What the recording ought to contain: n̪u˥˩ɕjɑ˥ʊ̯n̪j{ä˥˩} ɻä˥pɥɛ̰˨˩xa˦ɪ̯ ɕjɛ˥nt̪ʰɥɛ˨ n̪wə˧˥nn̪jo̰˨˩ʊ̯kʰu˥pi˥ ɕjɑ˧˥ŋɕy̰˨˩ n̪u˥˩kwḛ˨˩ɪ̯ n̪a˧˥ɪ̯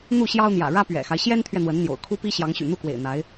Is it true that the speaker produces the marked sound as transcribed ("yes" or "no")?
no